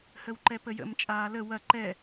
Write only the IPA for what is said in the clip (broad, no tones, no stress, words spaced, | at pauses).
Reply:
həwǃɛpəjə̰m t͡ʃʼaːlə wɐ ǃɛ